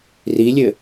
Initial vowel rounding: unrounded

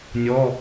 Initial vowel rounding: rounded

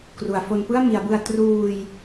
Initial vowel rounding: rounded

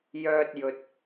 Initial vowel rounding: rounded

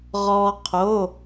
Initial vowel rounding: rounded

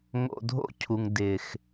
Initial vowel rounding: rounded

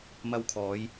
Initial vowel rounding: unrounded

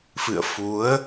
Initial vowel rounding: unrounded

